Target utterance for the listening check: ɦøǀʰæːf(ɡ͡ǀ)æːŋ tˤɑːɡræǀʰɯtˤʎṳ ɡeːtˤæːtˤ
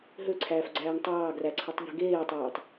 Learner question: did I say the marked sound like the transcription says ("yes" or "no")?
yes